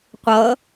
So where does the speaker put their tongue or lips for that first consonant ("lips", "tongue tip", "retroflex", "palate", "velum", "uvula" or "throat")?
uvula